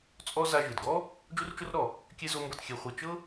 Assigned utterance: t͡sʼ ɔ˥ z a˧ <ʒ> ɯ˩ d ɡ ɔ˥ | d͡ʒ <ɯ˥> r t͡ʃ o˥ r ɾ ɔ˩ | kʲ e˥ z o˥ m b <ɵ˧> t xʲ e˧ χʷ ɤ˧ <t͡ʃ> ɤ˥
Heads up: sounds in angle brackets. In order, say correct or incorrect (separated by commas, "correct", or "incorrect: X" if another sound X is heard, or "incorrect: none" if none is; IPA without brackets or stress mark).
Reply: correct, incorrect: u˥, incorrect: ɤ˧, correct